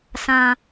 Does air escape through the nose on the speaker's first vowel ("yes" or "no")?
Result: yes